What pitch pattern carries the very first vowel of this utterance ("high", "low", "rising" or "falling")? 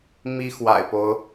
high